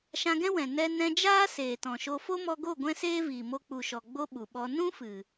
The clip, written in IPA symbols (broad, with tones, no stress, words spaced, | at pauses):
ʃã˧ɡɛ̃˦wɛ̃˨ nɛ˧ nɛ̃˧d͡ʒaː˦ seː˨tɔ̃˨ʃo˧ fo˦mɔ˧ɡo˦˨ ɡʷɛ̃˦seː˦viː˨ mo˧k͡pu˨ʃɔ˨ ɡ͡bo˦ɓu˨ɓɔ˧ nũ˦ fɨ˨